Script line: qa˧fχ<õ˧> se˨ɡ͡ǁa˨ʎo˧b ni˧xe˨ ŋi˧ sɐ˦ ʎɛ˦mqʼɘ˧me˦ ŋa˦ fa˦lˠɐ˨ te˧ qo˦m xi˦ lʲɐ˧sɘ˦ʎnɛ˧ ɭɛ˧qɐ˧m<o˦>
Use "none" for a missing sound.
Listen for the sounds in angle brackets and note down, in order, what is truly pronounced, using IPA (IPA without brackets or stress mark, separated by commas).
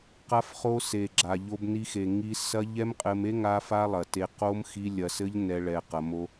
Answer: o˧, o˦